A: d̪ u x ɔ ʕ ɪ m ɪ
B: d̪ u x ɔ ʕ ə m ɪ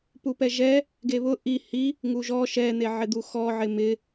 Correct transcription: A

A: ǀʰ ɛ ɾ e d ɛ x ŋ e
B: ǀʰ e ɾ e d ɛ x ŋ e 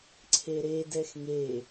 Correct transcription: B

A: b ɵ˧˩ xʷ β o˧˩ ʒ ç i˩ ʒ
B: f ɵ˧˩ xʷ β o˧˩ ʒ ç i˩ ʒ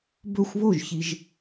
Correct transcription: A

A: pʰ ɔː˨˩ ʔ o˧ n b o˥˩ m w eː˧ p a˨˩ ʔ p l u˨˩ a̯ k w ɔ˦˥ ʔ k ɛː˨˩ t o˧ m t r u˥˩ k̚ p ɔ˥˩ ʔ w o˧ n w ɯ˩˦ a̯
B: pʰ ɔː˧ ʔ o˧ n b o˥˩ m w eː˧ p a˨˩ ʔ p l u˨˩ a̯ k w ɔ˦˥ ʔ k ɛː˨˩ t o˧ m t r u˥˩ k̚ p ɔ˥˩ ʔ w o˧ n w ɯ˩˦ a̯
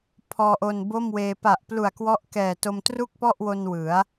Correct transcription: B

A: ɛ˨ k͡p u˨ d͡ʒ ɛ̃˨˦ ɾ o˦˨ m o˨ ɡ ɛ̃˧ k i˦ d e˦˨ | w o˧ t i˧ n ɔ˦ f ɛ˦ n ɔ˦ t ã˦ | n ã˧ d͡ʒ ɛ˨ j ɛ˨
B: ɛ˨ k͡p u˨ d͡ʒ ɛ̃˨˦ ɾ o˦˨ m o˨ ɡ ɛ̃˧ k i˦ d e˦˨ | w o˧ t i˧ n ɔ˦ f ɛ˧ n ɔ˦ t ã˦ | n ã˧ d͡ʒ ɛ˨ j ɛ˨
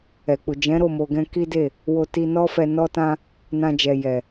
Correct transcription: B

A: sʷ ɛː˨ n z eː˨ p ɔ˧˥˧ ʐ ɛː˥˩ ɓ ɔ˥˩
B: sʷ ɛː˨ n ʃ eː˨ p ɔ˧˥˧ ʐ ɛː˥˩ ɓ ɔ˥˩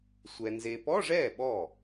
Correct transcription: A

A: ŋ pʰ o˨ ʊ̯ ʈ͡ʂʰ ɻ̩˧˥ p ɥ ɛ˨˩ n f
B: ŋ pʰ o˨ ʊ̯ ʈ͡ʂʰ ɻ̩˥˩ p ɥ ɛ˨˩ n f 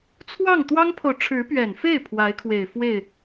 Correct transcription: A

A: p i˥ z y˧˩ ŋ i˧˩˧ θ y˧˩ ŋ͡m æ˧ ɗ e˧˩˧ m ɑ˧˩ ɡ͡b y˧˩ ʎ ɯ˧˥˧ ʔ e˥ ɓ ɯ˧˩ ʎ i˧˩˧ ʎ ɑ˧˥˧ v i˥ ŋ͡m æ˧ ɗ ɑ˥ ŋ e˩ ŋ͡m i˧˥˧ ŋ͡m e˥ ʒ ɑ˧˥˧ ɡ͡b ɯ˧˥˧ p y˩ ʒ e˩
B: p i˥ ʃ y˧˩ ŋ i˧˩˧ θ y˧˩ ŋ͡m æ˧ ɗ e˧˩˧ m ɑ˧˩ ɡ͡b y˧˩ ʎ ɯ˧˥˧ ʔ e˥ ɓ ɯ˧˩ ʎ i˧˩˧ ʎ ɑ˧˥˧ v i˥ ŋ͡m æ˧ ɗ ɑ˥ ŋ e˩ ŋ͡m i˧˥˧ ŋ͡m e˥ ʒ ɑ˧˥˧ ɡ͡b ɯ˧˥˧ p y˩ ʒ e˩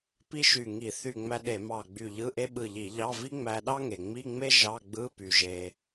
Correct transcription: B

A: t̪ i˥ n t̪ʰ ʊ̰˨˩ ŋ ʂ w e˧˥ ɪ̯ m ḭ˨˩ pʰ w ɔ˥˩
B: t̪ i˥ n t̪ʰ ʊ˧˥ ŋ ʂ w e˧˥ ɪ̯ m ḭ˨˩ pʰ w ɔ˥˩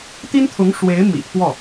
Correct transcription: B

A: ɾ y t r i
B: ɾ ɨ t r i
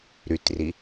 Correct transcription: A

